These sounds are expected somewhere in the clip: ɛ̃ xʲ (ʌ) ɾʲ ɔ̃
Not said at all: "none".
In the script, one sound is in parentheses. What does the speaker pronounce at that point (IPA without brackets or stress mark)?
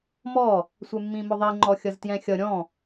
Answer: ʌ